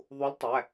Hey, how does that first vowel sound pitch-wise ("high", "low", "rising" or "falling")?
rising